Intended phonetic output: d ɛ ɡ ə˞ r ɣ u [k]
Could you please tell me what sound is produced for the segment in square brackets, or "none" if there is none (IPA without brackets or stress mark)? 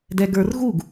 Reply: ɡ